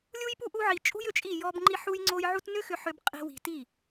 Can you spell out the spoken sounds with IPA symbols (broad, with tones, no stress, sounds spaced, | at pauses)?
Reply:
lʲ u˦ j p u˦ ʔ u˦ ʕ i˧ t͡ʃʼ ṳ˦ j ʏ˧ t͡ʃʼ i˦˨ j ɔ˦ b ŋ͡ǃ i˦ ħ u˦ j ŋ͡ǀ o˦ j ʕ u˦ t n ʏ˦ x ʏ˧ ħ ʏ˧ b qʼ i̤˦ w i̤˧ t i˦˨